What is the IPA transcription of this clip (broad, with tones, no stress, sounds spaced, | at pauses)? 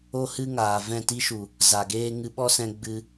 o˦ h ɨ˦ ŋ aː˨ v ɛ̃˦˨ t i˦ ʃ u˨ | z a˨ ɡ eː˦ ŋ ɨ˧ ɓ ɔ˦ s ɛ̃˧ ɡ͡b ɨ˧